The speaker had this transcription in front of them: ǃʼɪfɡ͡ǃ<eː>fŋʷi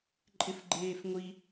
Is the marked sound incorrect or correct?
correct